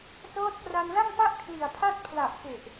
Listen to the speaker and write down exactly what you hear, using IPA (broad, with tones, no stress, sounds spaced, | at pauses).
s ɤː˦˥ t̚ k r a˧ n l a˥˩ ŋ p a˥˩ ʔ kʰ l i˨˩ a̯ pʰ a˥˩ t̚ pʰ l a˨˩ ʔ k e˨˩ ʔ